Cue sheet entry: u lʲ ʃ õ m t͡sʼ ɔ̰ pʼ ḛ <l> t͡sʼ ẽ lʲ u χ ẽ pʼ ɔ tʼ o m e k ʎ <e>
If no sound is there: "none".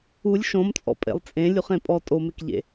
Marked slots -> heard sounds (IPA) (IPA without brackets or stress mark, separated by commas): lˠ, ḛ